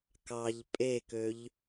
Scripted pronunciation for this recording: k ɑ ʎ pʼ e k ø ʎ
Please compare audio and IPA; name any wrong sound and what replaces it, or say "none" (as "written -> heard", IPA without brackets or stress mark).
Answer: none